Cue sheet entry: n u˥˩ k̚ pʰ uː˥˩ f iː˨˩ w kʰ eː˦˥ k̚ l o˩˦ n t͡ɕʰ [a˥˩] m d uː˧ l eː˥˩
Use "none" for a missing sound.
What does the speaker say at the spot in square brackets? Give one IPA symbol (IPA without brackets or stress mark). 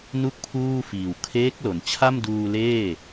a˥˩